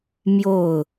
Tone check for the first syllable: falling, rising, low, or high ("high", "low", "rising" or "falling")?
falling